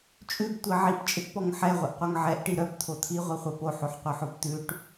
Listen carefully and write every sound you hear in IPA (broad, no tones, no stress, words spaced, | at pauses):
t͡ʃʼʉbtʷi ʕipt͡ʃʼiʈpɔŋ ħɛʁʷiʔqʷœŋ ʕɛʔʈi ɾœpt̪ʰo t̪ʰiʁʷiχʷœ poħoħqʷœħob t̪ʉʈ